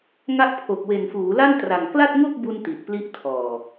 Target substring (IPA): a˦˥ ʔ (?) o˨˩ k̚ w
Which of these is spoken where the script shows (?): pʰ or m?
pʰ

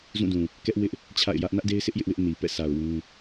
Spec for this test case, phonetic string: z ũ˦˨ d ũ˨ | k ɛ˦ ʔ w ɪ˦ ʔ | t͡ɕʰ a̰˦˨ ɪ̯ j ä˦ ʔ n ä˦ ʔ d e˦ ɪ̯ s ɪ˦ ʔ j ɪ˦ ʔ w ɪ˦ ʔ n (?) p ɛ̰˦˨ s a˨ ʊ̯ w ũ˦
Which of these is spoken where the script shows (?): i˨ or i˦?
i˨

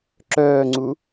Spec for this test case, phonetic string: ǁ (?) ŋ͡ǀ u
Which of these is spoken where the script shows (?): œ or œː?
œː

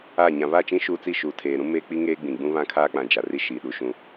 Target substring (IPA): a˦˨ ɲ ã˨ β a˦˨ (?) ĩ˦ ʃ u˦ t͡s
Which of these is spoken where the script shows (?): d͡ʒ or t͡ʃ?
t͡ʃ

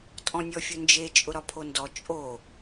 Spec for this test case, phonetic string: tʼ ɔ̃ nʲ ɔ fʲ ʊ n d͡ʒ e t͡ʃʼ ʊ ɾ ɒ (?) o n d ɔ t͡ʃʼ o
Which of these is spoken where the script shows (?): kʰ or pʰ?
pʰ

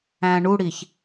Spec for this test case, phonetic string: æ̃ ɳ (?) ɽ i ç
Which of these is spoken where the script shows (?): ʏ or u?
u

